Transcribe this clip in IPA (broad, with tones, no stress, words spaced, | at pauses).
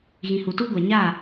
ɣĩ˨hu˨tuː˦ɡʷa˨ ɲa˦˨